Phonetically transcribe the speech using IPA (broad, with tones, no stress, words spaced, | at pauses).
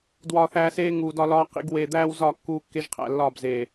dwɒː˨θæː˨seː˧ ŋuː˨dɒ˧lɒː˧ qḭ˧ɡ weː˨d̪æː˧w zɒ˦˨kːuː˧ kːe˦ʒqʰæ̰˧lːɒː˦˨bzeː˨